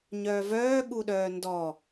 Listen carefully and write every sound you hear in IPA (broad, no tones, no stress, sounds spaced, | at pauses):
ɲ œː v œː ɠ u ɗ œː n d ɔ